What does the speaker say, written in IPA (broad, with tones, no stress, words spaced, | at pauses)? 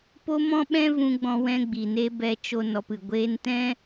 po˦mɔ̃˦ɓɛ̃˦ vũ˧ɡ͡bɔ̃˧ wɛ̃˧ɡ͡bi˨ne˧ bɛ˧t͡ʃo˧ nɔ˧pɨ˨ ɡʷeː˧ntɛ̃˦